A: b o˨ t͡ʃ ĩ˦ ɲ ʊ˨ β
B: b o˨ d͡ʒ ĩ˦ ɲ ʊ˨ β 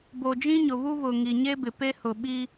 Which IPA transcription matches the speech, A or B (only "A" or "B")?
B